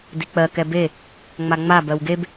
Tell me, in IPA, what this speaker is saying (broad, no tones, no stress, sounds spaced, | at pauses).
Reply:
d i k͡p ɜ k ɛ b e | ŋ͡m a ŋ͡m a b ɜ w ɡ e b